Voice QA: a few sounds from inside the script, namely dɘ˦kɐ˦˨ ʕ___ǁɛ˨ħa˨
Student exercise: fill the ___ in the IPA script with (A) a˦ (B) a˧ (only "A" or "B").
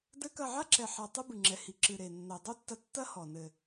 A